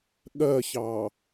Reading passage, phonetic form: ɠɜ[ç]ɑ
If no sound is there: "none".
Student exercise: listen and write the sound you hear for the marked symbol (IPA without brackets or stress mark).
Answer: ç